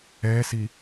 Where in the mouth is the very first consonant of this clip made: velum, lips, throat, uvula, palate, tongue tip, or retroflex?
tongue tip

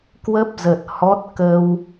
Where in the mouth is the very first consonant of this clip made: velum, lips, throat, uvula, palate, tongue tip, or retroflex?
velum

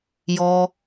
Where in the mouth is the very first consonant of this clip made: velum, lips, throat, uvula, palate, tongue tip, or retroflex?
palate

